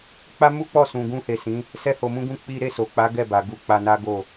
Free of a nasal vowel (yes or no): no